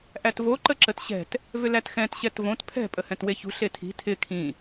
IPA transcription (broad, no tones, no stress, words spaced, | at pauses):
ʔætvo ǃəǁətɕɛ̤t | vʏlætxɛ̃t ɕɛtvõt pʰɛ̤ pʼəhɛ̃tweçṳ ɬetʰi̤ tʰɪ kʰĩ